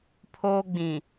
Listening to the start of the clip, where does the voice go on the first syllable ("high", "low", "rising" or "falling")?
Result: high